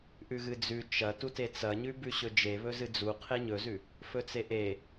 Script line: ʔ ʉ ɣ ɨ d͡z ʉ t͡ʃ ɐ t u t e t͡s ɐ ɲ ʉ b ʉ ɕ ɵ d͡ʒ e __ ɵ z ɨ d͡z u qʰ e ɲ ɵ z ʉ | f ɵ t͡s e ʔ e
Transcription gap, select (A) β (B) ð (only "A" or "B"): A